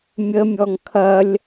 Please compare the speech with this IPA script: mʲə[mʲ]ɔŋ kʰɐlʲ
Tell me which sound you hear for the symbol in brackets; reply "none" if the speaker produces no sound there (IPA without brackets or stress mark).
mʲ